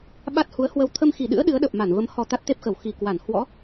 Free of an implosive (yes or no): no